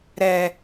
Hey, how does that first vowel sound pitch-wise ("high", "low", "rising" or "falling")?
low